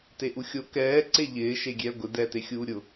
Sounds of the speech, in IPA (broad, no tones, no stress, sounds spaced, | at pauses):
t e ʔ u xʲ o k ɛː ǀ e ʎ ɪː ʃ e ɡʲ ɛː ɡʷ ɪ d ɛː t e xʲ uː ɾʲ ʊ